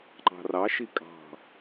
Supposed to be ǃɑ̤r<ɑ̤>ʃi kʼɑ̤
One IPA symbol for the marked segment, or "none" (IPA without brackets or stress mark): ɑ